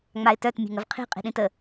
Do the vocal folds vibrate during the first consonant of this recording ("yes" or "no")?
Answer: yes